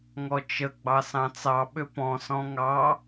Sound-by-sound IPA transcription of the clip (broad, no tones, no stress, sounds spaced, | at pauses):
ŋ ɔ t͡ʃ ə ɡ͡b ɑ s ɑ̃ t͡s ɑ ɓ ʏ p ɔ̃ s ɔ̃ ŋ ɑ